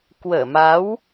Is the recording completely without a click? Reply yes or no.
yes